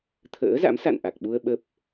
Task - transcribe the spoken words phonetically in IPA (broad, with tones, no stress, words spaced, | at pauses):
t̪ʰə̰ː˧˥za̰˧˥m sa̰˧˨nʔa˨˩k̚ɓu˧ə̯ ɓə˦˥p̚